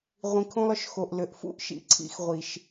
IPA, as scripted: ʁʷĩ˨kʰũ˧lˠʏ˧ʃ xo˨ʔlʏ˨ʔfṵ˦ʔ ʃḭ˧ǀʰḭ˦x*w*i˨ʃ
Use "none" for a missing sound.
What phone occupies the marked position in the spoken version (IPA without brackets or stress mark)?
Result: ʁʷ